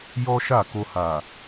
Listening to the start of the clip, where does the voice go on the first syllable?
high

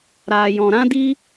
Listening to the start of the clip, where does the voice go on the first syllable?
low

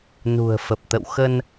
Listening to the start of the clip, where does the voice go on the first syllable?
low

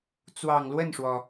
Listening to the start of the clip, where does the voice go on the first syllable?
low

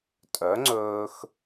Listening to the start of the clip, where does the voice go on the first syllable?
rising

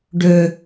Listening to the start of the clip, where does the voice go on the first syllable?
low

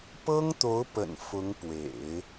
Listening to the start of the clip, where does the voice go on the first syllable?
high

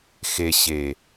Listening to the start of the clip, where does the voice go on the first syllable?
low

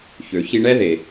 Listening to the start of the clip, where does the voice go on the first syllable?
low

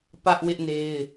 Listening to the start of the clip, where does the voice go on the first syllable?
high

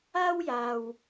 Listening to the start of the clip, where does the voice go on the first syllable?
high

